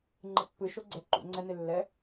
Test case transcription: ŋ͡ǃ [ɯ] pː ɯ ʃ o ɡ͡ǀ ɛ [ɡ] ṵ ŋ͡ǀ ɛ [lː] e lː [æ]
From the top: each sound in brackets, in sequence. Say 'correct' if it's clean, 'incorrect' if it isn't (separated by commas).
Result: correct, incorrect, incorrect, incorrect